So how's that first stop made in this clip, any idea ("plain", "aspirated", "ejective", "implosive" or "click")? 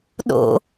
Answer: implosive